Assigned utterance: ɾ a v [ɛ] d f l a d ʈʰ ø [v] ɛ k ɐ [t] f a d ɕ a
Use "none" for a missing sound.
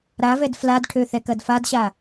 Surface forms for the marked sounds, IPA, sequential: ɛ, θ, d

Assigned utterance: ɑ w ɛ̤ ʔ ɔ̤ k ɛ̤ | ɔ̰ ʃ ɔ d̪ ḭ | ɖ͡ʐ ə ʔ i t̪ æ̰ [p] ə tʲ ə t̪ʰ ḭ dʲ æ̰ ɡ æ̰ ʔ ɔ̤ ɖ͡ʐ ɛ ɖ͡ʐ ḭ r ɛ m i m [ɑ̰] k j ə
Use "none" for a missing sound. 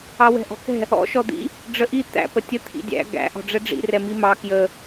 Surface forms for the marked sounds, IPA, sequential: p, ɑ

